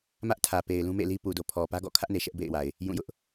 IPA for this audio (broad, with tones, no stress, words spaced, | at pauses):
mä˦ʔtʰä˨pe˨ɪ̯ lũ˦mḛ˦˨li˦ pu˨do˨ pʰɔ˨ pä˦ɡɔ̰˦˨kʰä˦ʔne˨ ʃɛ˦ʔbḛ˦˨ɪ̯wa˨ɪ̯ | jũ˦˨jʊ˦ʔ